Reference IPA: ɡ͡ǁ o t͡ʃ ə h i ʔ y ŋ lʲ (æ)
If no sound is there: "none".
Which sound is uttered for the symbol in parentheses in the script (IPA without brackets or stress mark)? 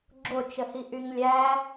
æ